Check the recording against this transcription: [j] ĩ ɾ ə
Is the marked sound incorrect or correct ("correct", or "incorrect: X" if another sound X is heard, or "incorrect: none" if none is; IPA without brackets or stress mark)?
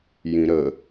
correct